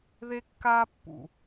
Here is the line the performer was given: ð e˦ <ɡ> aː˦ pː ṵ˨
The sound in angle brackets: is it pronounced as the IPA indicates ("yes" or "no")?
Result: no